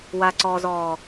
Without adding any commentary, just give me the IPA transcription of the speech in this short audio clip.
w a ǀ ɔː z ɔː

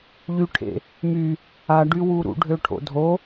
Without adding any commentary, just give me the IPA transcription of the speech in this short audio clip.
ʎ y ʈʰ ḛ | m y | a ɖ y w u ɾ ṵ ɖʱ ø ʈʰ o̰ dʱ o

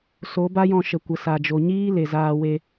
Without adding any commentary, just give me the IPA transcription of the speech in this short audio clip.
s o˨˦ b a˦ j ɔ̃˧ ʃ ə˨ kʷ ə˨ s a˨ d͡ʒ o˨ ɲ iː˦ l e˨ z aː˧ w e˧

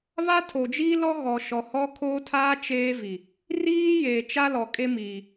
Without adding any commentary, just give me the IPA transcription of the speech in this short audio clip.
β a˦ tʰ o˨ d͡ʒ iː˦ l ɔ˦ ɣ ɔ˨ ʃ ɔ˨ h ɔ˦ kʰ oː˦ tʰ aː˦ t͡ʃ eː˦ v i˨ | r iː˦ j eː˨ t͡ʃ a˦ l ɔ˨ kʼ e˦ m iː˨

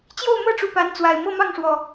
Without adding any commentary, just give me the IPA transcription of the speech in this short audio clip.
t͡ɕ j o˥˨ ʊ̯ m ɤ˥˨ ʈ͡ʂ u˨˩ p a˨˦ n t͡s w a˨˩ ɪ̯ m ɤ˥˨ m ɑ˥˨ ŋ ʂ w ɔ˨˩

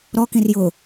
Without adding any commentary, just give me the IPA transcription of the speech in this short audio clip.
ɾ ɔ k ĩ r j ʊ

